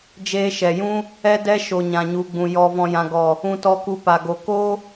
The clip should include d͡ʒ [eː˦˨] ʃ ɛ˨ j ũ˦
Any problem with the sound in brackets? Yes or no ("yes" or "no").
yes